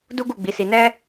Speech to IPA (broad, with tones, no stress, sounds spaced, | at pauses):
d u˦ ɡ u˦˨ ɡ͡b i˨˦ s i˧ n ɛ˦